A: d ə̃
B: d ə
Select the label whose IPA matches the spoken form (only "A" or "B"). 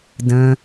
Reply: A